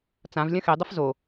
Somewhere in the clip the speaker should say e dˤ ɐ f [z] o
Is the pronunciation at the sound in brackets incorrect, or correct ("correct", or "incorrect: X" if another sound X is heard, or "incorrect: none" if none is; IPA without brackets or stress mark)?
correct